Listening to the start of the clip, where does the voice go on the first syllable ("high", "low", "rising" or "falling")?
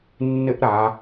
high